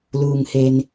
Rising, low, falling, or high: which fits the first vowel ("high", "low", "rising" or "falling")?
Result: low